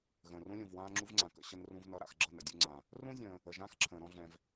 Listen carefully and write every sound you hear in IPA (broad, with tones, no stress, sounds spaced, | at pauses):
ɣ ə̃ː˨ r ũ˥ lʲ ũ˨ v w ãː˥ ŋ͡ǁ u˥ v ŋ͡ǀ ã˨ k ə̰˥˧ ɕ ə˥ n r ũ˥ v n ʌ˥˧ ɾ a̰˥˧ x ɡ͡ǁ ʌ˥˧ n ə̰˥˧ dʲ u˥˧ ŋ͡ǀ ã˨ | r ũ˥ zʲ ə̃ː˨ | ə˨ ʒ ãː˥ x ǁʰ ə̃ː˨ ɾ ɔ̃˥˧ ɮ ɛ̃˨ v